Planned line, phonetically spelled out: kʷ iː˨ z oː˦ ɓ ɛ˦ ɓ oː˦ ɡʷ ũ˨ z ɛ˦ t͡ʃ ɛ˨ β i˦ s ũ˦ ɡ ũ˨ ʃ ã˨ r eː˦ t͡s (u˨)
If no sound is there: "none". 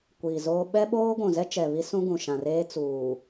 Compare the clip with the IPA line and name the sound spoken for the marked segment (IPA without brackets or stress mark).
uː˨